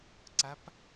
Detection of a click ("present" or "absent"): present